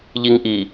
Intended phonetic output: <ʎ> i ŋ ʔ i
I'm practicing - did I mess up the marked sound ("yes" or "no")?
no